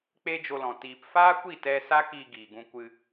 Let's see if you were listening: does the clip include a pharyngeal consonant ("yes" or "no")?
no